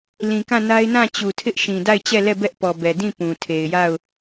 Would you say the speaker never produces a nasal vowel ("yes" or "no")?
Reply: no